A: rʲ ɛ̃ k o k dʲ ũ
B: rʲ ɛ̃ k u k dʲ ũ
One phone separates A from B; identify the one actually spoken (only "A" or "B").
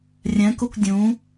B